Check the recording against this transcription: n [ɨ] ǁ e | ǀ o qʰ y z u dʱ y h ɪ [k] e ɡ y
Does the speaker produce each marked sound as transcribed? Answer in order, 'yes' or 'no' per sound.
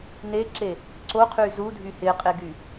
no, no

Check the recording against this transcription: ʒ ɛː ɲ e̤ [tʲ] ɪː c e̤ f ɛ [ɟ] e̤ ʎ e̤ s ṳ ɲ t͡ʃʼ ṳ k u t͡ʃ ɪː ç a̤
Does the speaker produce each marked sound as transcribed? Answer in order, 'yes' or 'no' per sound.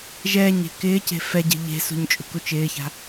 no, yes

